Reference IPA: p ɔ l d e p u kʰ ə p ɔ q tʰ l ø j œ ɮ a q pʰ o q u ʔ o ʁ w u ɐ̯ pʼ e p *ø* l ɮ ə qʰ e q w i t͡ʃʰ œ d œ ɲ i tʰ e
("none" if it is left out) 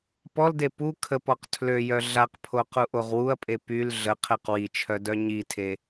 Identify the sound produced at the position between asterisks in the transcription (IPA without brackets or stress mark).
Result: y